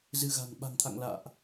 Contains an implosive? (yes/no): yes